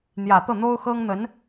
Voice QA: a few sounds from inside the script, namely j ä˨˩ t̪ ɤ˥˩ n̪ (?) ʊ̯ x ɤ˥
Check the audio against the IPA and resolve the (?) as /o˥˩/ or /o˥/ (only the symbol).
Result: o˥